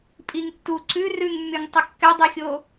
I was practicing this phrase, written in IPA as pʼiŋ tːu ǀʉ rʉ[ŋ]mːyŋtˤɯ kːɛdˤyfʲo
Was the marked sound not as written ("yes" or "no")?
no